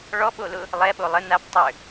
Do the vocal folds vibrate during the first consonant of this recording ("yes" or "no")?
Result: yes